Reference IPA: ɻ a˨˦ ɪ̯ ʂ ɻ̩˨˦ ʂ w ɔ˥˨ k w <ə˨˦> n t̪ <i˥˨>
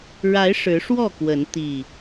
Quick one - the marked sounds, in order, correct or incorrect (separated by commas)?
correct, incorrect